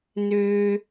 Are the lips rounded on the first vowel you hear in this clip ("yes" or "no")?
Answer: yes